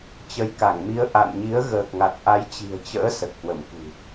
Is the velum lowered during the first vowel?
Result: no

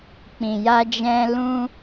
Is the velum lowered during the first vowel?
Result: yes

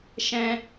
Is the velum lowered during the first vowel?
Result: yes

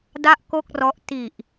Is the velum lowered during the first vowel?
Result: no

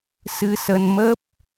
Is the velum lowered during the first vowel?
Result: no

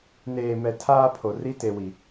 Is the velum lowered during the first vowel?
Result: no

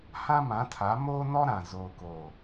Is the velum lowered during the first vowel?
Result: yes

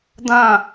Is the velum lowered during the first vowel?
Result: yes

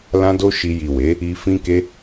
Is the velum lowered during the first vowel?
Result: yes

